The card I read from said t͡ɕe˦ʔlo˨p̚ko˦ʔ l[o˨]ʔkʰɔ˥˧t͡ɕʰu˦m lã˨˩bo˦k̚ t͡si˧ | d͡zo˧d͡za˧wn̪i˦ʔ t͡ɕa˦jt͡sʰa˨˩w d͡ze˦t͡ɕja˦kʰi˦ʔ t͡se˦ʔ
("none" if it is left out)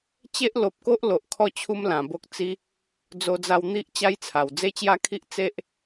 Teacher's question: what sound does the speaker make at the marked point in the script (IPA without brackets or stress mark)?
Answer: o˨